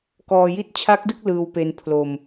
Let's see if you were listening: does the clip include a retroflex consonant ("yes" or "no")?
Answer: no